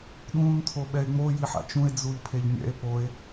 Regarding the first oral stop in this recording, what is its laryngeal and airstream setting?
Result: implosive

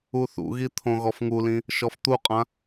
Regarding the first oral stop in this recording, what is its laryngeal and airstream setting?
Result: aspirated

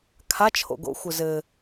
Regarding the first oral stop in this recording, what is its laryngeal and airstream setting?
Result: aspirated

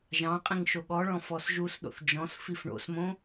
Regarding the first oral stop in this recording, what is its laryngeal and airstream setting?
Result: ejective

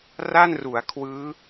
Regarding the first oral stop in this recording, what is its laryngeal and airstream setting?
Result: aspirated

